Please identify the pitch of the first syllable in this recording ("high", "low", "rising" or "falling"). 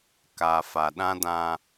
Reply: low